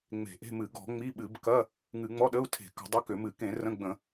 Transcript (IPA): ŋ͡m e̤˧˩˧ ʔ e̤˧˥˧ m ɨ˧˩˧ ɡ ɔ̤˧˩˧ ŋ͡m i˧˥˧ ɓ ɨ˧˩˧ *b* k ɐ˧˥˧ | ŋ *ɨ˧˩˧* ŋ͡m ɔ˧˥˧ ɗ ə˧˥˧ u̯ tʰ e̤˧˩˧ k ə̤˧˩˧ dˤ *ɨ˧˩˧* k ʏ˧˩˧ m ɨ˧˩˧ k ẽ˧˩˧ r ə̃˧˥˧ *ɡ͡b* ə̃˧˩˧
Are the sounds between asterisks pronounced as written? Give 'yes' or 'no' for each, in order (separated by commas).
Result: yes, yes, no, yes